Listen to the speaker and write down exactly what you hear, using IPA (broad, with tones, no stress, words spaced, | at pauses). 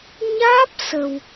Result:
ɲaː˦˥p̚ sə˨˩w